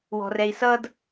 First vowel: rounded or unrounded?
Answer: rounded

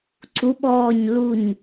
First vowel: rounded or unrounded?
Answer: rounded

